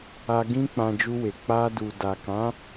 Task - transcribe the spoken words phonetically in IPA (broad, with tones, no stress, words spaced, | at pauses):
a˧ ɡĩ˦ k͡pã˧d͡ʒu˧we˨ k͡pa˧du˨ da˨kã˨˦